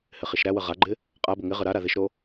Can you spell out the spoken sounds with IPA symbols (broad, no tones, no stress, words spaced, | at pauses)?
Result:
hɪχiʃɾæwə ʁaɡ͡ǃɪ | qʼabə ŋɪʁə ɾaɾa ðɪʃɾo